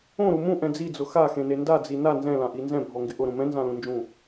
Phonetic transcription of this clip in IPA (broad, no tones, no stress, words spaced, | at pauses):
õɾu mũʔɛ̃ d͡zid͡zʊ xaxẽne ndad͡zi na nzɛ̃lãʔi nzɛ̃bʱɔŋɡɪ ʔʊɾũ mɛ̃nzãlũnd͡ʒũ